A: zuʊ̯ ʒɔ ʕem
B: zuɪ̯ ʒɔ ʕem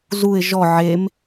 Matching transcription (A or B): B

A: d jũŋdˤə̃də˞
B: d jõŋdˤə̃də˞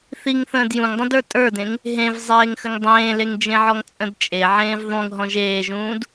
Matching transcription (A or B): A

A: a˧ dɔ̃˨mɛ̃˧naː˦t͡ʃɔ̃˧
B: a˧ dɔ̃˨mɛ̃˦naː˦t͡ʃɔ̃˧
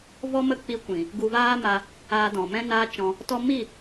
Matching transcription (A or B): B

